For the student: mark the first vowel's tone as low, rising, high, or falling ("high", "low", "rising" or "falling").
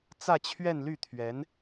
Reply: falling